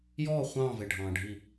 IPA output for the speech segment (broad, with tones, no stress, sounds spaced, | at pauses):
j ɔː˦˨ χʷ ɑ̃ː˦˨ v e˨ ɖʱ ɑ̃ː˨ ɖʱ i˦˨